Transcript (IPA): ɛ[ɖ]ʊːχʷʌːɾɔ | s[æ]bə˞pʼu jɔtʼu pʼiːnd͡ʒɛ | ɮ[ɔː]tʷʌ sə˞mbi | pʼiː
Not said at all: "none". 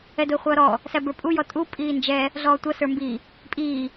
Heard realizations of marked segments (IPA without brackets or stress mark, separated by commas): d, æ, ɔː